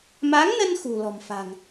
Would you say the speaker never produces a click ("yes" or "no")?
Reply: yes